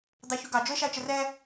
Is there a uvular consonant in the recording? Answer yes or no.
no